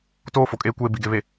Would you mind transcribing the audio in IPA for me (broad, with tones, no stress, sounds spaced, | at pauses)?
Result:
t oː˦ f o˨ kʼ eː˦ kʷ eː˦ b i˨ ɡ e˨ β e˨